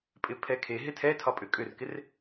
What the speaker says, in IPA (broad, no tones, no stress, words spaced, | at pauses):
pʼɪpʰɛkʰeɦɪ tʰɛtʰɒ pʼʏkʼʏrkɪr